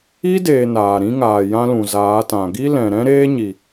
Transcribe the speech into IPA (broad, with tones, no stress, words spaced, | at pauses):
i˦deː˨ naː˨ɾĩ˦ŋaː˨ jã˦lũ˨zaː˨˦tã˨ ɡi˦lɛ̃˨ɾɛ̃˦ɾeː˦ ɲi˨